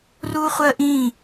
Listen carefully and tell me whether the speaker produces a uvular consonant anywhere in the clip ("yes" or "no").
yes